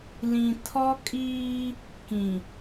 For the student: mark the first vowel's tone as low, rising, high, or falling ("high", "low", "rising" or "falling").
low